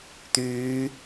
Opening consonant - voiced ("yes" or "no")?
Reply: no